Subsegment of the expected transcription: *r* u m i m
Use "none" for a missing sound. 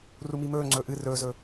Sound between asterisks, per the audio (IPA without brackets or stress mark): r